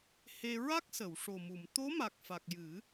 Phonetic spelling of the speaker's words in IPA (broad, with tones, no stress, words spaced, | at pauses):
he˧ ɹa˦˥k̚sə˨˩˨wʂo˨˩ mu˨˩˨m t̪o˧˥ma˨˩k̚fa˨˩k̚ jɨ˨˩˦